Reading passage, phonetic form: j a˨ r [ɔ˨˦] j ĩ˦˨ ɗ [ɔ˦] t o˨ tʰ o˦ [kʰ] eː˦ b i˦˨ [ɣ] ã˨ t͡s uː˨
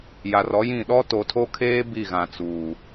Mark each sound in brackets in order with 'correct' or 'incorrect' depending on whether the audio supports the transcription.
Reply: correct, correct, correct, correct

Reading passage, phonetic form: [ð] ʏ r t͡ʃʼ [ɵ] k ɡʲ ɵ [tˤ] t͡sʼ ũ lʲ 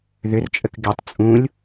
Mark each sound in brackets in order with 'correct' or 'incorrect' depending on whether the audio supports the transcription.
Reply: correct, incorrect: ə, correct

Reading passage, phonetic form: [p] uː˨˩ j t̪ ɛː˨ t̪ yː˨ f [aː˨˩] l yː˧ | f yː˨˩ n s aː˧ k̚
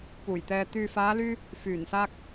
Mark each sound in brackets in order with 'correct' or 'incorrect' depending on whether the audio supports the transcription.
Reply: correct, incorrect: aː˨˧

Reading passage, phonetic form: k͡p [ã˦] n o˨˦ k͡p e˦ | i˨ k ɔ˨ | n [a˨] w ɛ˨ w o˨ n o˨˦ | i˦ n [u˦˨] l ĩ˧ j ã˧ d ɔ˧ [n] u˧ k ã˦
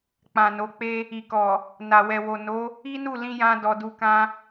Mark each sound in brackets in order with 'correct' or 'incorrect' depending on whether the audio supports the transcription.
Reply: incorrect: ã˨, correct, correct, incorrect: d

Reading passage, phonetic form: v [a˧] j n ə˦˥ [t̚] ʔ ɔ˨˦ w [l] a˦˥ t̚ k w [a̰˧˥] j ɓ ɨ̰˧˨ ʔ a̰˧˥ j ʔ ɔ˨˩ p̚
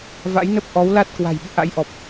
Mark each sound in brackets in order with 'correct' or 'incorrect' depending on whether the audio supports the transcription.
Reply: incorrect: a̰˧˥, incorrect: p̚, correct, incorrect: a̤˨˩

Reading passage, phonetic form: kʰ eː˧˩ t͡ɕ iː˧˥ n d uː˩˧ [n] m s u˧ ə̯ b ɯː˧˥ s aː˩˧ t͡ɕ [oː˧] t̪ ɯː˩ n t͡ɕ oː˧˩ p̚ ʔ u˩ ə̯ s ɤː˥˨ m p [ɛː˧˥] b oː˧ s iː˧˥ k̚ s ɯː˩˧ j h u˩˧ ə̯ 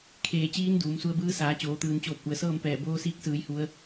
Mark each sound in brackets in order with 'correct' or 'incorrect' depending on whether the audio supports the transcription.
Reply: incorrect: none, incorrect: oː˩˧, incorrect: ɛː˧˩

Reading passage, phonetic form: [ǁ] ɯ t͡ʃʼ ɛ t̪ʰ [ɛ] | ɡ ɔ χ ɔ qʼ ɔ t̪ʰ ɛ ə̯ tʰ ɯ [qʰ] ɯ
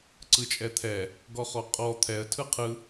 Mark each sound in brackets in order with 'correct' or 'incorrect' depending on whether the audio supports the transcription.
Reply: incorrect: ǀ, correct, correct

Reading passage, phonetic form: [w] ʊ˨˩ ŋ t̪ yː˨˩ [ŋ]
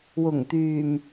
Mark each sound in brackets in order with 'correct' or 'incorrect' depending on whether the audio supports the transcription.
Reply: correct, incorrect: m

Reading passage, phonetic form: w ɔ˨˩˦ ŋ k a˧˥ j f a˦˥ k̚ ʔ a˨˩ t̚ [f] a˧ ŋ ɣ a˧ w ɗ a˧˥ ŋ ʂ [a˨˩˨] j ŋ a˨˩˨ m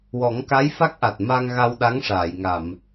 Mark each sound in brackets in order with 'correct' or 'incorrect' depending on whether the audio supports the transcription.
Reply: incorrect: m, correct

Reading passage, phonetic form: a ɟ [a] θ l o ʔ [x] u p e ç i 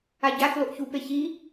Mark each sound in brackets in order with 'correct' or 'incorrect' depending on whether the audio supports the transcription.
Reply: correct, incorrect: ç

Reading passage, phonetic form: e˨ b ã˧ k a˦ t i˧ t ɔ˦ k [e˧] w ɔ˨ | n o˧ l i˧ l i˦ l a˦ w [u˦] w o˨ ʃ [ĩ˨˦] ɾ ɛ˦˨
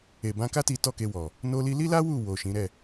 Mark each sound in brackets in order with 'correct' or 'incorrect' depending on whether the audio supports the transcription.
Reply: correct, incorrect: u˦˨, correct

